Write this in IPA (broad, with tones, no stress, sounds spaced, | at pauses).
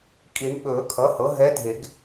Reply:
kʼ i˨˩˦ ɳ ɓ ɵː˨˩˦ kʰ ʌ˩˥ h ɤ˩˥ ɦ ɛ˧˥ dʱ e˨˩˦ ɡ